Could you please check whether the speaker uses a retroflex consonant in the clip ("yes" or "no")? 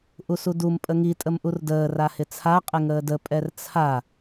no